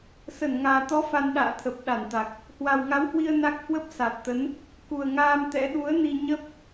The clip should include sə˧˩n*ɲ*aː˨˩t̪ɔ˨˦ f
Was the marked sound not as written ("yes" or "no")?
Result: yes